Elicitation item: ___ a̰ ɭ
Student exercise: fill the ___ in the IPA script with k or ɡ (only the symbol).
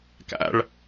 k